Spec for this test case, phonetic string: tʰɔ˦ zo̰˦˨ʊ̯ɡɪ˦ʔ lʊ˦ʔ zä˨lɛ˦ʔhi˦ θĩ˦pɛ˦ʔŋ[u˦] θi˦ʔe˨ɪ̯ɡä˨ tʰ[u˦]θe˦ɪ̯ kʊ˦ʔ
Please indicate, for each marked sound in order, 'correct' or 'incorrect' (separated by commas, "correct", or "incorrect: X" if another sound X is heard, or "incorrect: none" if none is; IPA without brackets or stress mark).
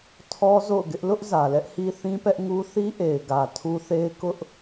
correct, correct